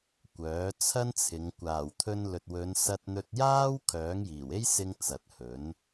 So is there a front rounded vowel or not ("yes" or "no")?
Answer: yes